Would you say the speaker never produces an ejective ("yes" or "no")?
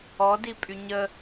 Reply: no